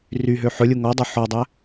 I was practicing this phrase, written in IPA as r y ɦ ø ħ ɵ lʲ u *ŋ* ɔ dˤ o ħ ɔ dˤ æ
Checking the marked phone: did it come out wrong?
no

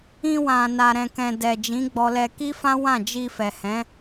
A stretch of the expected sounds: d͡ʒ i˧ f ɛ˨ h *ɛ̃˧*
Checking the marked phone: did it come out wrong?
yes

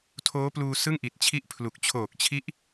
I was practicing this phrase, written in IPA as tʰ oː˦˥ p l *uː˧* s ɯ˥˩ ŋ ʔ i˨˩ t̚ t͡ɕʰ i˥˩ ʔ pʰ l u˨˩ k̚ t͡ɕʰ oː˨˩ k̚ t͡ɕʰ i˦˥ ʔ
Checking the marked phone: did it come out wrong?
no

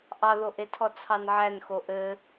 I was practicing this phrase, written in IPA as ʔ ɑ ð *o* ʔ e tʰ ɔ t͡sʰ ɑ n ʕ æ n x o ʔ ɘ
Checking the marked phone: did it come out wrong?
no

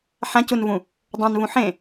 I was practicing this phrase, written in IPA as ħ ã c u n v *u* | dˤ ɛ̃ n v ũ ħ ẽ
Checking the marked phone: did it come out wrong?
yes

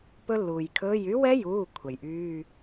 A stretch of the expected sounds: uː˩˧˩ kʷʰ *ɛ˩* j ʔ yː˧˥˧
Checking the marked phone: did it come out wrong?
no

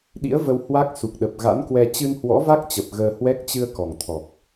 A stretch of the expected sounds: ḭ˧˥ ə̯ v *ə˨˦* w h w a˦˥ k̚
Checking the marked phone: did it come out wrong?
yes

